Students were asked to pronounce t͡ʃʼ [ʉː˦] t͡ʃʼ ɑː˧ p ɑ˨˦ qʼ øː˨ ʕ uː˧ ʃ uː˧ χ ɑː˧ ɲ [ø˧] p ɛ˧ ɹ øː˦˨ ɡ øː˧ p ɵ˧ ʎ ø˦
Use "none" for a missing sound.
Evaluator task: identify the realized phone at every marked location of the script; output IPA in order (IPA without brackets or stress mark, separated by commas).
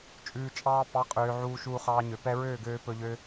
ʉː˨, ø˨